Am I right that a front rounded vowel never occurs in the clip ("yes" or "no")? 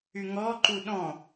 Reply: no